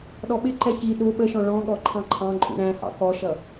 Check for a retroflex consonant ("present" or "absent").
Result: present